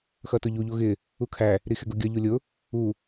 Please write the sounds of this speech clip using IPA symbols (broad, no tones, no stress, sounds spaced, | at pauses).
x ʌ t ʊ ʎ u ʎ u ɣ ɪ | u kʰ æ | ɾ i x ɪ ɡ ʊ ɡʲ ʌ ʎ u lʲ ʊ | u